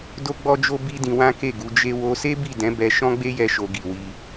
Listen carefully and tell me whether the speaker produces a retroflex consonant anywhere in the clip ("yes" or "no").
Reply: no